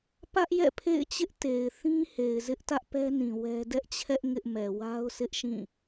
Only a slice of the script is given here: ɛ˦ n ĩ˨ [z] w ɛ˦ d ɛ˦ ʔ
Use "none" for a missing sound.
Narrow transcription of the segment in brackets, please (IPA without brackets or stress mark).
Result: none